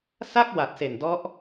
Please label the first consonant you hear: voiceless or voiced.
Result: voiceless